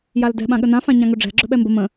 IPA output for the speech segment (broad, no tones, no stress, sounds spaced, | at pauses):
j a l d ɛ̤ ɓ ã ɠ ə n ã f ã ɲ ã ŋ ɵ ɖ͡ʐ ɛ̤ ɡ͡ǁ ɵ ɓ ɛ m b ə m ə̃